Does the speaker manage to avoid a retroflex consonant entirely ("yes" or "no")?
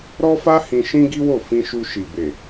yes